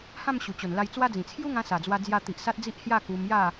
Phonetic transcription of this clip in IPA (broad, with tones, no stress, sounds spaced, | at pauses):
h ã˥˧ m ɕ u˨˩ t͡ɕ o˨˩ n l a˧ j t͡s w a˦ d͡z ĩ˨˩ t͡sʰ j u˦ ŋ ã˧ s a˨˩ d͡z w a˧ d͡z j a˧ t̪ i˨ ʔ s a˦ t̚ d͡z i˦ ʔ h j a˥˧ k u˧ m j a˥˧